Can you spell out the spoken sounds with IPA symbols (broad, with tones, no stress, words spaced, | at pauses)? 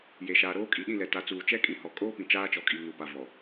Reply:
je˨ʃaː˨ɾoː˦ kʼi˨ɗĩ˦˨lɛ˨ ta˨˦ t͡suː˨t͡ʃɛ˦kʼĩ˨hɔ˨ kʼoː˦pĩ˨ t͡ʃaː˦t͡ʃɔ˨kʼi˨ ŋu˨pa˨vɔ˨